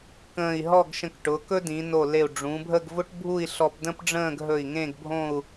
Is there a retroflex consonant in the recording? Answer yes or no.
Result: yes